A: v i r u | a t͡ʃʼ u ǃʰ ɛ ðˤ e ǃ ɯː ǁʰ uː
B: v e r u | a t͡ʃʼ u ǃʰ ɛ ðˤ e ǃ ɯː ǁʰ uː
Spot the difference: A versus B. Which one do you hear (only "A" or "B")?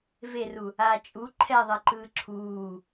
B